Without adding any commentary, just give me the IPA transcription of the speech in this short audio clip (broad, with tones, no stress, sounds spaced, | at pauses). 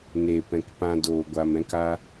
n eː˨ p ɛ̃˨ k p ã˧ d oː˨ ɡʷ a˨ m ɛ̃˧ k a˧